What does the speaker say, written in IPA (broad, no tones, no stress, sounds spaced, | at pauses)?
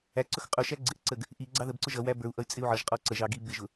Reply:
æ ǀ ʊ x qʼ ʊ ʃ æ ɡ͡ǀ ɪ ʔ ǀ ə ɡ | ʔ i ɡ͡ǀ ɑ ð ə b ǀ ʊ ʒ ʌ w æ b ə˞ u̯ ʔ ʌ y̯ t͡sʼ ɪ u̯ ʕ ʌ ʒ qʼ ɔ ǀ ə ʒ ɑ ɡ i b ɪ ʒ ʊ